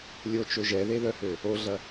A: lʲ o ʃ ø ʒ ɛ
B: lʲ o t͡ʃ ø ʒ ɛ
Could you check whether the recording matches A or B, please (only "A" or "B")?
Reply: B